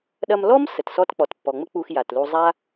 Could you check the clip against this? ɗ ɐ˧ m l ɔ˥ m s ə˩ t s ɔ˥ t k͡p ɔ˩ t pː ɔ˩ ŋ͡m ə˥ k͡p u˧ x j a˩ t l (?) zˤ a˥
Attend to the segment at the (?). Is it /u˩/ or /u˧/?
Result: u˧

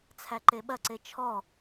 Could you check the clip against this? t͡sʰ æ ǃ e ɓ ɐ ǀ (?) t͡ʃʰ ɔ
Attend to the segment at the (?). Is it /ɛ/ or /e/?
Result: e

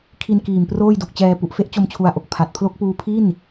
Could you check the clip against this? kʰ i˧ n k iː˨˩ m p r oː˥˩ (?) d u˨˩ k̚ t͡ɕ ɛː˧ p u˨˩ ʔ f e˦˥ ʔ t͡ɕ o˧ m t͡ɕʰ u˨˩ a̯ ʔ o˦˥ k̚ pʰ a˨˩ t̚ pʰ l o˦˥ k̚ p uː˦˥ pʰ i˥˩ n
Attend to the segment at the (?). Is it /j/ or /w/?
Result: j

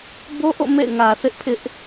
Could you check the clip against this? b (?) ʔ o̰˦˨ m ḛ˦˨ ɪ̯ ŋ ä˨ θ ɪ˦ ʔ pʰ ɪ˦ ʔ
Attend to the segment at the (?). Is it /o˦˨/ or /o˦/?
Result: o˦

